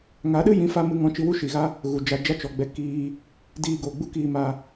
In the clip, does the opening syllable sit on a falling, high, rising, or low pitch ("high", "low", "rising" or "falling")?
rising